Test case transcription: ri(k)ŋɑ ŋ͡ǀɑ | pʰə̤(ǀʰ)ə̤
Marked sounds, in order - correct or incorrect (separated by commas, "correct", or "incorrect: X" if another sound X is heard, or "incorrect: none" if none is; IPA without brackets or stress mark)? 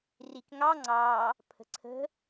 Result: correct, correct